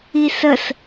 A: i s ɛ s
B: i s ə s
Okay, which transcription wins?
B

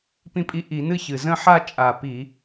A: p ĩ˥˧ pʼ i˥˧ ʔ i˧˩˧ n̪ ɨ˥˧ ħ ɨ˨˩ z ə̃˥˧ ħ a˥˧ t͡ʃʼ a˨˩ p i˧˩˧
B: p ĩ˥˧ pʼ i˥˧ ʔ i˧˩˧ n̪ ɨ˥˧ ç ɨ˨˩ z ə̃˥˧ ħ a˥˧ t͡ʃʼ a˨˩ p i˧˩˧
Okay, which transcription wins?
B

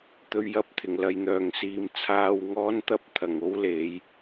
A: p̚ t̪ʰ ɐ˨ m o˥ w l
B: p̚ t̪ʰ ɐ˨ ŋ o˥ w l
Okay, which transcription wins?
B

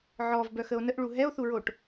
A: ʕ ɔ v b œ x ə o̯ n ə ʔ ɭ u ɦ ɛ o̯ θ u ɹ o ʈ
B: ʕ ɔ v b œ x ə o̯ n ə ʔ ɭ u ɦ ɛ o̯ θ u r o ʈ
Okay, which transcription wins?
A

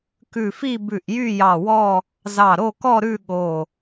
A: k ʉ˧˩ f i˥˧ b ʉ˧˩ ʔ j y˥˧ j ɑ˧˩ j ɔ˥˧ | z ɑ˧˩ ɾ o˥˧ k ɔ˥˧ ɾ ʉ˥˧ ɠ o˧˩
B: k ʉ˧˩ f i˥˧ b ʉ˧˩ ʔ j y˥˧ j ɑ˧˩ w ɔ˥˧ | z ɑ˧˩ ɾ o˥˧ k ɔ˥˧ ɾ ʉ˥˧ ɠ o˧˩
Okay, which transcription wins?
B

